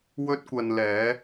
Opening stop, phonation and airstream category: plain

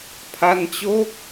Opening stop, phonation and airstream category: aspirated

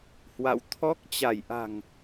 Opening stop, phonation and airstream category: aspirated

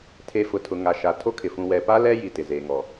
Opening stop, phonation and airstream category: aspirated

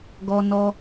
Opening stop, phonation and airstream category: plain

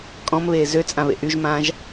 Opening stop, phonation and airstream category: ejective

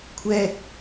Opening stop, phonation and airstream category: aspirated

